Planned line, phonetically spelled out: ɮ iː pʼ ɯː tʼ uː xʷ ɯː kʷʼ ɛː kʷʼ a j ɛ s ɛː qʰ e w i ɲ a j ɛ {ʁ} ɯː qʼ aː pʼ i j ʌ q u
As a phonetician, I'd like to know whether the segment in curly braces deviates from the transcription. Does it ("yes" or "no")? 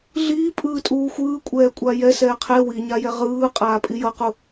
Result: no